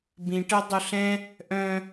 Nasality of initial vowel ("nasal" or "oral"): nasal